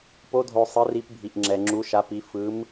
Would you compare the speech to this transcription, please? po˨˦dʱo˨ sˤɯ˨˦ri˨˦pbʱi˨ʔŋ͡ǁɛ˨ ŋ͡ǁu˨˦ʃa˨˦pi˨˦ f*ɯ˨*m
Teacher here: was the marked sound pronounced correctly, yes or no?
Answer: no